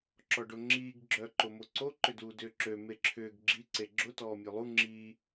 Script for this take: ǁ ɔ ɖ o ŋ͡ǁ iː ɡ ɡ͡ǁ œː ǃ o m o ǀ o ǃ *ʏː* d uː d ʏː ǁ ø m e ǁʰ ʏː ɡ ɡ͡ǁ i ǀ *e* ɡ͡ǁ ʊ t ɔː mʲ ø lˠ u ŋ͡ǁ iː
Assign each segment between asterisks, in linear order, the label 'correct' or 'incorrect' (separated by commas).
incorrect, correct